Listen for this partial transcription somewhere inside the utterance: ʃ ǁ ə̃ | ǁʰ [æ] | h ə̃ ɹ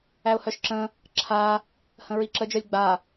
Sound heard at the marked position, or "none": a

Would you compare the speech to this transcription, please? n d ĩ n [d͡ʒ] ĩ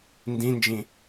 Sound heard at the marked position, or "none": d͡ʒ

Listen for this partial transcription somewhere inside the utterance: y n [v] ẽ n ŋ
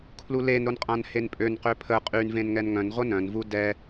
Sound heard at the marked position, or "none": v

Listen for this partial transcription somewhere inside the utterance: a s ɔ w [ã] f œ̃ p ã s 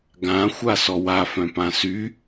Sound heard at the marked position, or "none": a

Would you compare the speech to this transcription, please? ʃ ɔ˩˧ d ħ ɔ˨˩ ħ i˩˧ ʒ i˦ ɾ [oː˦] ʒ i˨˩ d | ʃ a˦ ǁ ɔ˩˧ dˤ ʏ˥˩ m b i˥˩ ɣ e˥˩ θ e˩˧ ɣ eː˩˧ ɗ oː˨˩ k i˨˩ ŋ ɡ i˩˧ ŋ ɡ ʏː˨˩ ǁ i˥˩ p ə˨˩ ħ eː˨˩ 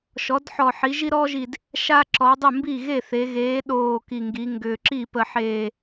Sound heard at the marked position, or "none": ɔː˦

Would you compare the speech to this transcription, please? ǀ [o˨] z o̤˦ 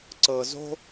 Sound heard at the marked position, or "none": ɤ˨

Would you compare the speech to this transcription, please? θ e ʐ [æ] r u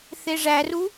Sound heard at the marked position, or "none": æ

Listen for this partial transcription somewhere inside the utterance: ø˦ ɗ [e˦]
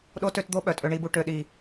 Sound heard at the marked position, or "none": i˦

